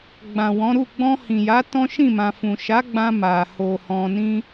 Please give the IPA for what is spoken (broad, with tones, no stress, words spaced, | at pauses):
ɡ͡bã˨wɔ̃˨˦ɾu˦˨ ɡ͡bɔ̃˧hĩ˨ja˨˦ tɔ̃˦ʃĩ˦˨mã˨fũ˨ ʃa˨˦ ɡ͡bã˧ ma˨ho˨ hɔ̃˧nĩ˦